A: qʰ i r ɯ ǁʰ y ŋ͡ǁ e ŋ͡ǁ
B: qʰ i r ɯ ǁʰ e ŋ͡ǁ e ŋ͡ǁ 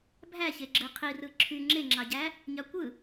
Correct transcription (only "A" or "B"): A